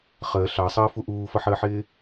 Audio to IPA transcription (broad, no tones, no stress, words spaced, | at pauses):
χəː ɬɑsˤəːfu ʔuːfʌħəːħɪː